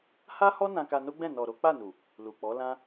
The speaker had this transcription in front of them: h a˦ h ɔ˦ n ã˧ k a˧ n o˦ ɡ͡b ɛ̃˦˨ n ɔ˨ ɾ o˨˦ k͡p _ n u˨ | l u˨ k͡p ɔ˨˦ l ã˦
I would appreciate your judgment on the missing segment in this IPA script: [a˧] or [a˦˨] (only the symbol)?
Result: a˦˨